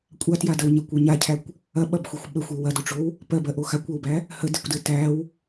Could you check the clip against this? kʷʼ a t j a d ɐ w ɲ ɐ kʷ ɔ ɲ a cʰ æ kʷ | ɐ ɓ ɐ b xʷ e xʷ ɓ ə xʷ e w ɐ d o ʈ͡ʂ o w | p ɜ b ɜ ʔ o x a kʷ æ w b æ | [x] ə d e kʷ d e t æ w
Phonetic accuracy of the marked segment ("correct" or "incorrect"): incorrect